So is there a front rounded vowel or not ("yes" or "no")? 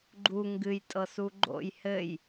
no